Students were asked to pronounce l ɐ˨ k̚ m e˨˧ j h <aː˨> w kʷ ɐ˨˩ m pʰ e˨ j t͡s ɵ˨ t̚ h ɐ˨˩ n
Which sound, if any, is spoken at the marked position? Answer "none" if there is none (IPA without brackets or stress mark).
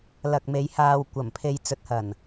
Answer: aː˨